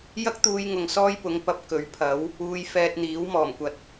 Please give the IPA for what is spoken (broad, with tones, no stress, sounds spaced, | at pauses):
j ɐ˥ k̚ t̪ uː˧ j ŋ ʊ˨ ŋ s ɔː˥ j p ʊ˨˥ ŋ p ɐ˨˥ p̚ k ɵ˨˥ ɥ pʰ ɐ˨˥ w | uː˧ j f ɛː˧ t̚ n̪ iː˨˥ w m ɔː˨˩ m kʷ ɐ˨ t̚